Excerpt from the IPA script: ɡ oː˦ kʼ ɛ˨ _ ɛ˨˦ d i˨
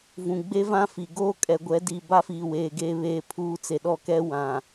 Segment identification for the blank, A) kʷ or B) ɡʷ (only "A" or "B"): B